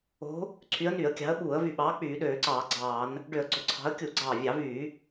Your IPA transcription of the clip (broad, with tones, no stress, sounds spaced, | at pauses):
o̤˨˦ | ǀʰ y˨˦ ə̯ n y˧˩˧ ə̯ kʲ ɑ̤˨˦ ə̯ ɓ uː˧˩˧ ə̯ v y˧˩ ɓ ɑː˨˦ k͡p yː˧˩˧ ɗ øː˧˩˧ ǀ ɑː˧˩˧ ɡ͡ǀ ɑː˧˩˧ n | ɖ ø˧˩˧ ə̯ ɡ͡ǀ o˨˦ ǀʰ ɑ̤˨˦ ə̯ kʲ u˧˩˧ ɡ͡ǀ ɑː˧˩ vʲ ɑ˧˩˧ v yː˧˩˧